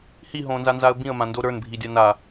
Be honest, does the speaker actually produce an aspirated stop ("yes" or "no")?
no